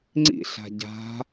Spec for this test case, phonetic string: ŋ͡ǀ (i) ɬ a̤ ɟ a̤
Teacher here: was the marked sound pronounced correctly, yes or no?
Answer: no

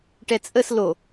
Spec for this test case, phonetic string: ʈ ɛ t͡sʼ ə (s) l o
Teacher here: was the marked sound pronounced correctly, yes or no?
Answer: yes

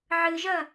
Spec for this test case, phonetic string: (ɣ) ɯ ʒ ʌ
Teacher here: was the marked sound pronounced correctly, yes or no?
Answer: no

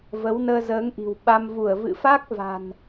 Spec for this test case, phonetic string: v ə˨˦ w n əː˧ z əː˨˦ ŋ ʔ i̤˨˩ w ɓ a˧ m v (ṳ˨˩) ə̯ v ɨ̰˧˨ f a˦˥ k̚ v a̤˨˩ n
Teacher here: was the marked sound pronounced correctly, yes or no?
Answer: no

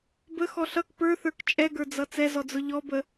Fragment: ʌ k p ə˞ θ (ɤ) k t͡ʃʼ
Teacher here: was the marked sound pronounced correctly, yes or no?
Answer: no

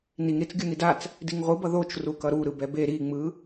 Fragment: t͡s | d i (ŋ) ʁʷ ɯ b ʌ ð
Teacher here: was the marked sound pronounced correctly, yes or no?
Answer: yes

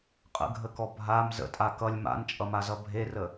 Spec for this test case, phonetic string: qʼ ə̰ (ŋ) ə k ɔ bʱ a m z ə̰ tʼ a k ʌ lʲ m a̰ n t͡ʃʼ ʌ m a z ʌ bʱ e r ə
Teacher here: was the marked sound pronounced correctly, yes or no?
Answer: no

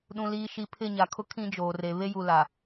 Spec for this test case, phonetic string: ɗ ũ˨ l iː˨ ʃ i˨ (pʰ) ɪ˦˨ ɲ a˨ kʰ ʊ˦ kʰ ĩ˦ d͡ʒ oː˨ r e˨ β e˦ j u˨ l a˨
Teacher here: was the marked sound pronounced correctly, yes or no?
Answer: yes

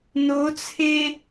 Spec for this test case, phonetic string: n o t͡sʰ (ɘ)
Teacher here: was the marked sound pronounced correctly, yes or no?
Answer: no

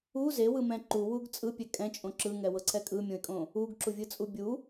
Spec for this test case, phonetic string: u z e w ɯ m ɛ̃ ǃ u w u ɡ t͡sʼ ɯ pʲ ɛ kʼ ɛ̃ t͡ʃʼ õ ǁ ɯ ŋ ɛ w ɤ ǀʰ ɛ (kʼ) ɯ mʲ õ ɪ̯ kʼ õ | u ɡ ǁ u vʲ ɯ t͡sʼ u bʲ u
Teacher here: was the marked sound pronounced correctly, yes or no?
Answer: yes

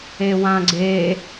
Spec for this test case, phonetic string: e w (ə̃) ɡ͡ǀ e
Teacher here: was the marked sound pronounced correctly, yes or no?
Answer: no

